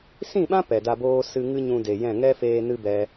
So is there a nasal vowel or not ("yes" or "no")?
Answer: yes